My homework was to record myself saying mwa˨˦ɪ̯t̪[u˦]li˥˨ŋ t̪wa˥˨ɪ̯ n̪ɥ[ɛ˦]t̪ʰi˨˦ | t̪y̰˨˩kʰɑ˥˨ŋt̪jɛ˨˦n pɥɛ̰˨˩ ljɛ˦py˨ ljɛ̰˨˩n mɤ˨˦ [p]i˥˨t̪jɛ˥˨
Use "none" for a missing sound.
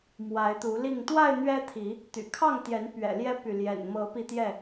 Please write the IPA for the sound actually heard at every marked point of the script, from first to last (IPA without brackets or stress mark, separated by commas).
u˨˦, ɛ˦, p